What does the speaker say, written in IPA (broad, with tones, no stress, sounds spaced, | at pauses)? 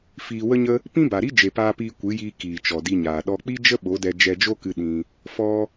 f iː˧ w ə˦ ɲ ə˦ | p ĩ˦ b a˨ ɾ i˦ d͡ʒ e˨ p aː˧ p iː˧ kʷ ɨ˨˦ j iː˧ k iː˨ t͡ʃ ɔ˨ d i˧ ɲ aː˨ ɗ ɔ˦ k͡p i˦ d͡ʒ ə˦ ɓ o˨˦ d ɛ˧ d͡ʒ ɛ˧ d͡ʒ o˦ k ɨ˧ ɗ ĩ˧ | f ɔ˧